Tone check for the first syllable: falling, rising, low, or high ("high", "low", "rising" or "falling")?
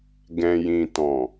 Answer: low